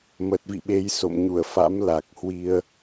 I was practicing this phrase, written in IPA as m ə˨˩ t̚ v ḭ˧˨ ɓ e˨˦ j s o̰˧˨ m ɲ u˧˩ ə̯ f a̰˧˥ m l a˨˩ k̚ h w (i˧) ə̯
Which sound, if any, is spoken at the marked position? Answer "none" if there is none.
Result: i˧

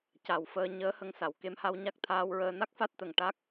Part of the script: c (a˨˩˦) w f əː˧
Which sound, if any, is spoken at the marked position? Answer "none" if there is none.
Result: a˨˩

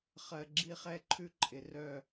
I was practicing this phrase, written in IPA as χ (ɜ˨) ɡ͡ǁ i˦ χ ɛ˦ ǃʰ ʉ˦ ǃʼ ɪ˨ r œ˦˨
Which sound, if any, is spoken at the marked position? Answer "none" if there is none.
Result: ɜ˨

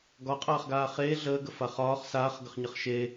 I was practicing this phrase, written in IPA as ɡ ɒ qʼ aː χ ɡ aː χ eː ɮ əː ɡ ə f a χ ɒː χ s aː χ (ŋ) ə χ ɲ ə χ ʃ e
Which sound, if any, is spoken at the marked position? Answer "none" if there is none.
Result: ɡ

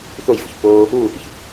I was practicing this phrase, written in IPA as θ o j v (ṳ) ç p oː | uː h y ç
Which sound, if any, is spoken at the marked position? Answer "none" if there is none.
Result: ṳ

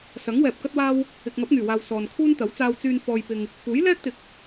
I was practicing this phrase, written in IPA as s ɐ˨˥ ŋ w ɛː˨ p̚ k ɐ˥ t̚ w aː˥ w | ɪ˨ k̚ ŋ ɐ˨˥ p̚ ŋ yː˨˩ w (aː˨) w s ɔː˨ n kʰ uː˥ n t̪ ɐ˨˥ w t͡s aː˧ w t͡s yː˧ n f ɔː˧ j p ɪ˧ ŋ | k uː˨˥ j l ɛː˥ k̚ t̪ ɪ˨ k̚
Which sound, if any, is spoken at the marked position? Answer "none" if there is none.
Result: aː˨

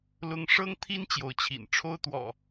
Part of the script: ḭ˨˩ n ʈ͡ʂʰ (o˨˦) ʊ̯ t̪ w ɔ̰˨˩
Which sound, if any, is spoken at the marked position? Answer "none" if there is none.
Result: o˦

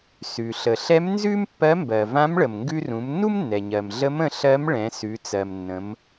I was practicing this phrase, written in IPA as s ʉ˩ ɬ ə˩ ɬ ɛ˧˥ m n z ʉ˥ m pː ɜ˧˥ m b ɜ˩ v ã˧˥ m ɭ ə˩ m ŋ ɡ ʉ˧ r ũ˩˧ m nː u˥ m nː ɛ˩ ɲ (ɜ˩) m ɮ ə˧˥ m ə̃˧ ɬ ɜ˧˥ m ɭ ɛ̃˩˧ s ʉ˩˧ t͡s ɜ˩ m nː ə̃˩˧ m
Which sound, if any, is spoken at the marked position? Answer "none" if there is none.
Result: ɜ˩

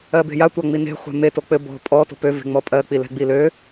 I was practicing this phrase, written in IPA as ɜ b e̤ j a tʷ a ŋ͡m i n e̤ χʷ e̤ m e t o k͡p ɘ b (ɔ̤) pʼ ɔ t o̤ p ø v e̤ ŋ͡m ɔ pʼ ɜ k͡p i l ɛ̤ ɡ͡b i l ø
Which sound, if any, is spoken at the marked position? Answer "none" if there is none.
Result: ɔ̤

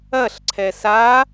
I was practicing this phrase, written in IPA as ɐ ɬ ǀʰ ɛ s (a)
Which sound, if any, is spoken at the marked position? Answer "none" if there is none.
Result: a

